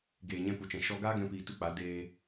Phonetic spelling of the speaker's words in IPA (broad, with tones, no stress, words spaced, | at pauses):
ɡeː˨ɲɛ̃˧ pu˨t͡ʃɛ̃˨ ʃɔ˦ ɡaː˦ɡɛ̃˧piː˨ tu˦k͡pa˨˦ deː˧